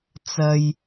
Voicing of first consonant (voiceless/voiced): voiceless